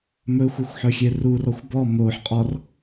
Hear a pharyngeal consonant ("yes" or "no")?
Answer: yes